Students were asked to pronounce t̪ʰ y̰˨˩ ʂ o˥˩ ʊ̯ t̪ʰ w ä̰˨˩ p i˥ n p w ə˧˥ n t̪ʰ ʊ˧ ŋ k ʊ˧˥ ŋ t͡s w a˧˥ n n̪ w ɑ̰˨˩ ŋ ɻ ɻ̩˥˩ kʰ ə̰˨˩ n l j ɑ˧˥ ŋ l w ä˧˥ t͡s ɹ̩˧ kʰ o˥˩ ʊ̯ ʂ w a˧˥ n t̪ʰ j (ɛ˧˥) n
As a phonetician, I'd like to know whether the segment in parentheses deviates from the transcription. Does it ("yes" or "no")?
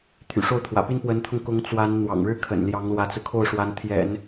yes